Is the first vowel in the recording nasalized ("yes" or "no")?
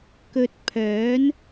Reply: no